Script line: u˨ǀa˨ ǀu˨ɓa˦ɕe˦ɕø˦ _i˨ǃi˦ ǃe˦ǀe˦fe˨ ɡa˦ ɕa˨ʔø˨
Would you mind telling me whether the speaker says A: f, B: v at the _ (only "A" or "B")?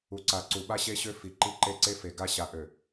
A